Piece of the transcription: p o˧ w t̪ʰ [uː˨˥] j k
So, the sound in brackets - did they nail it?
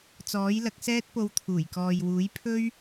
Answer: no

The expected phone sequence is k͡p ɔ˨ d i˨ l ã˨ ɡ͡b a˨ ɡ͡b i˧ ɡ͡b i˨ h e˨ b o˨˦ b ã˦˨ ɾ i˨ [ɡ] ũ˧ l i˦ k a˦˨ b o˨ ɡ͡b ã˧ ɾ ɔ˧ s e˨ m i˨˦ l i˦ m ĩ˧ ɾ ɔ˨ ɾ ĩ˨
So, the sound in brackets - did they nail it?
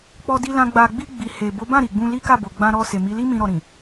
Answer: no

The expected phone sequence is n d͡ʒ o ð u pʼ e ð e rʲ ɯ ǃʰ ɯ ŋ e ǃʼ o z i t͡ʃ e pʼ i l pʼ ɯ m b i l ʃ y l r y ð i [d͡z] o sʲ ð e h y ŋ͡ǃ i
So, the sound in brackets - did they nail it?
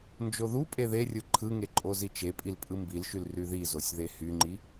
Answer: no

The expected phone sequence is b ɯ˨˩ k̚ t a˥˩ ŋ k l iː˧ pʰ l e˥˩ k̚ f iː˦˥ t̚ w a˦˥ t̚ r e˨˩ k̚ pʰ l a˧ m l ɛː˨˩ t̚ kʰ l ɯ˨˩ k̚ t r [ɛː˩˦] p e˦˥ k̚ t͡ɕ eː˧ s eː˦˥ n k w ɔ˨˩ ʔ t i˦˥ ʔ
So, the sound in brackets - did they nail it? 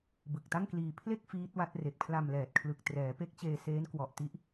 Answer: yes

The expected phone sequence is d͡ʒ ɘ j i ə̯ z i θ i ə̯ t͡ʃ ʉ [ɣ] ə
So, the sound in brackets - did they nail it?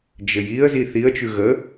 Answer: yes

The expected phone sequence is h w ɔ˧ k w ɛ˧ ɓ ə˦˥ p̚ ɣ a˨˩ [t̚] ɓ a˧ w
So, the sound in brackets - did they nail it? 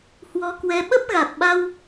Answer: yes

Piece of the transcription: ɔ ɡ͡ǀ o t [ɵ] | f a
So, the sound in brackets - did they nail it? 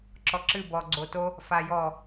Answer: no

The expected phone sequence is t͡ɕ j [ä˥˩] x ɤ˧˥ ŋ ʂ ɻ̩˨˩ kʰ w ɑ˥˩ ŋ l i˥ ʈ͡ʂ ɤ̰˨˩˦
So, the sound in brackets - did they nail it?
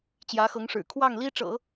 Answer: no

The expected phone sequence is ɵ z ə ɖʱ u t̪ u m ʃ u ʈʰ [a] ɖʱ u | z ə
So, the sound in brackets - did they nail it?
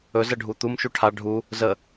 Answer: yes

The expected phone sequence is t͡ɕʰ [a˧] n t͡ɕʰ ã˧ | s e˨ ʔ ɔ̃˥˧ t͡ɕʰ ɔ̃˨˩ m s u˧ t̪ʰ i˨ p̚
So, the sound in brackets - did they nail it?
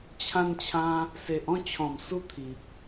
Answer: no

